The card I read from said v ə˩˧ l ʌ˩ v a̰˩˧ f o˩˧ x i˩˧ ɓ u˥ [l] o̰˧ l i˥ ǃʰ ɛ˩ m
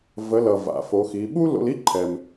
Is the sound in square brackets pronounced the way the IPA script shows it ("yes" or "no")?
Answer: yes